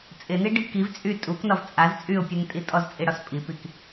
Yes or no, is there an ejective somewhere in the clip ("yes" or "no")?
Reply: yes